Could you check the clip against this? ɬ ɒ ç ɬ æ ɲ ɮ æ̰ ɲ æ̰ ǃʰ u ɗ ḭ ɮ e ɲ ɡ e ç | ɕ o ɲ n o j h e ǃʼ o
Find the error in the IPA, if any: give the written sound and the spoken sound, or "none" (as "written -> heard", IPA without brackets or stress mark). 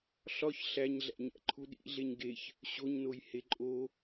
none